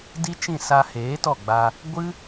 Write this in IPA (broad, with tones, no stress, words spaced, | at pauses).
di˦t͡ʃĩ˦˨ sa˧heː˨˦tɔ˦˨ɡ͡ba˧ | ɡʷɨ˦